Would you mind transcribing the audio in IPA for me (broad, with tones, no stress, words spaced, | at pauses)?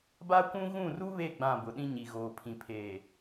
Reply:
ba˦kʷũ˦ ɣũ˦˨ru˦βe˦˨ ɡ͡bã˦˨bʊ˨ɗĩ˦ ɲi˨ɣoː˨pʰĩ˨pʰeː˨